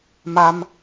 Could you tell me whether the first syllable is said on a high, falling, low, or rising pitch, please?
high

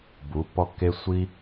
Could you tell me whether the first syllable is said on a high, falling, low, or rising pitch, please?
rising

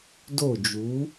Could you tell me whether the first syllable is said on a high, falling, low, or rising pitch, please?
falling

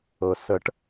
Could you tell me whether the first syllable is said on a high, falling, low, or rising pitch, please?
low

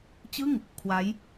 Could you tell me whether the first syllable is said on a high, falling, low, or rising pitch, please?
falling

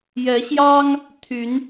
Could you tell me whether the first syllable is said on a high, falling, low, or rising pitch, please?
rising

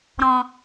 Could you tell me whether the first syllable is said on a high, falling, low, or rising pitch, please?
low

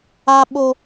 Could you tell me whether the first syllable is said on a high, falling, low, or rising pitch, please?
low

